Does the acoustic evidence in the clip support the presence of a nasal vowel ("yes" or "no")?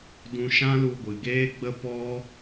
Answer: yes